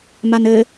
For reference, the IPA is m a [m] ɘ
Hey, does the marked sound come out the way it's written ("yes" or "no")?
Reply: no